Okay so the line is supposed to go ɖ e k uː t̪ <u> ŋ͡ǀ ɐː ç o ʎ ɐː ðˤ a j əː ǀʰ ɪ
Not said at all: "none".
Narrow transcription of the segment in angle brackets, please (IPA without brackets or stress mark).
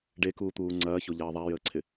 uː